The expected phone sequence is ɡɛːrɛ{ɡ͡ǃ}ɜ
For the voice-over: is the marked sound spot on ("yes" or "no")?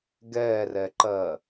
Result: no